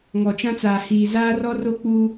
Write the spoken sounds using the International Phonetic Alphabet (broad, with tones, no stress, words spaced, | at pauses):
ŋɔ˨t͡ʃã˦t͡saː˨ hiː˨zaː˦ rɔ˦ro˦k͡pu˦